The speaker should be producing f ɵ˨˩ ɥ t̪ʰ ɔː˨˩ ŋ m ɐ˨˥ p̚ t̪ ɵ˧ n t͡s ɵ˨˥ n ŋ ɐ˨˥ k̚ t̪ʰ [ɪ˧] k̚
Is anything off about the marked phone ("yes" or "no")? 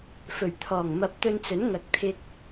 no